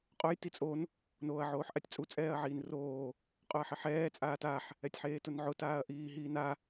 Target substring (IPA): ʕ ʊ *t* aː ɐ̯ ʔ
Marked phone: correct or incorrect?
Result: correct